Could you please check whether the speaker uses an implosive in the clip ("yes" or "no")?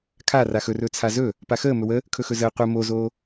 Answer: no